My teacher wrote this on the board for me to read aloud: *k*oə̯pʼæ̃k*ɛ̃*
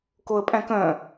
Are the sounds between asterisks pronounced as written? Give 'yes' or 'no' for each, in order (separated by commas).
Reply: yes, no